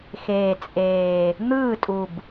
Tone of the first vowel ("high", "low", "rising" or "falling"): low